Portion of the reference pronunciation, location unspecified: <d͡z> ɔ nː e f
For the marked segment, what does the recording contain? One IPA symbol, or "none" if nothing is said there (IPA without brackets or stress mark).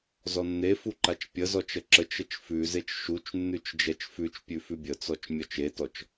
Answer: z